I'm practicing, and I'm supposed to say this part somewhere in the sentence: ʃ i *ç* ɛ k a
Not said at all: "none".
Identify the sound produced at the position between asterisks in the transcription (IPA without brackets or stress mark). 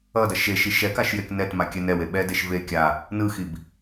ʃ